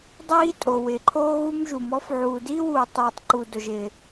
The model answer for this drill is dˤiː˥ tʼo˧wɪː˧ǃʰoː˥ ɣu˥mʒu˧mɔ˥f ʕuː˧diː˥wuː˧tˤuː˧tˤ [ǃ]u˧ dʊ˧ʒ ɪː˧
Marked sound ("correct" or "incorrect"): correct